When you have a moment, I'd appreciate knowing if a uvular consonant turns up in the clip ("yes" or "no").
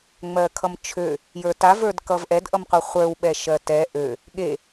yes